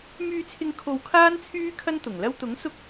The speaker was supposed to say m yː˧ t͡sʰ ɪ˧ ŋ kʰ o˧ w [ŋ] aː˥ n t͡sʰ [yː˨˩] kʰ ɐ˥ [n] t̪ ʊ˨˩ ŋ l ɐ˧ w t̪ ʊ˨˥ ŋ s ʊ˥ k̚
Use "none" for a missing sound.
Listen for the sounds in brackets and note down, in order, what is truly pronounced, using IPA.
kʰ, yː˥, n

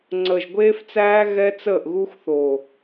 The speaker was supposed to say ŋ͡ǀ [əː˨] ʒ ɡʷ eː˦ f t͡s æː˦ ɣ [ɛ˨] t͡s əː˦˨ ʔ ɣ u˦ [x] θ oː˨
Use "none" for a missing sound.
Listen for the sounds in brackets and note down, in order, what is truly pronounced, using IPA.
əː˨, ɛ˦, x

